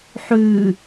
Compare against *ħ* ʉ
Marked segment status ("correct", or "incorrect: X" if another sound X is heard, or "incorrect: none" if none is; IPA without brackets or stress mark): correct